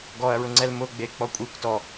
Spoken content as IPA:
ɡ ɔ ɐ̯ ɹ ʊ ŋ͡ǀ ɛ l m ʊ ɡ͡b e k͡p ɔ kʷʼ i kʷ t ɔ

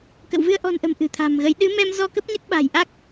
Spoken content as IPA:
k ə̰˧˨ w v ɨ˧ ə̯ ʔ ɔ̤˨˩ n ʔ ə̤˨˩ m ʔ ɨ̤˨˩ t̪ʰ a̤˨˩ m ɣ ə˨˦ j ɗ ɨ˨˦ m ɛ˧ m z ɔ˧ k ə˦˥ p̚ ɲ ə˦˥ t̚ ɓ a̤˨˩ j ʔ a˦˥ k̚

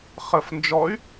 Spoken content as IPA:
χ ə f n d͡ʒ ɔ y̯

